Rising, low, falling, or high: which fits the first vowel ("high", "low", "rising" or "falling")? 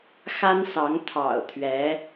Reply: high